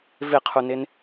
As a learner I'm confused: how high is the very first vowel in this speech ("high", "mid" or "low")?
high